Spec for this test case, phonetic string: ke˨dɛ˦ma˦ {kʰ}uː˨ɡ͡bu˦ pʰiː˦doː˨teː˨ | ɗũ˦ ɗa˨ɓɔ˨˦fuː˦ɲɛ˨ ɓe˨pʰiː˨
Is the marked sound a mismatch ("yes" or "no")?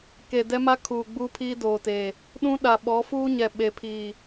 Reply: no